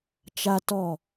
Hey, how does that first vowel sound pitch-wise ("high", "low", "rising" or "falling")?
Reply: high